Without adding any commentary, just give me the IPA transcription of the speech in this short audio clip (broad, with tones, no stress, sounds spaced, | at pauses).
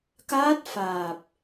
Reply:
k aː˦˥ t̚ f aː˨˩ p̚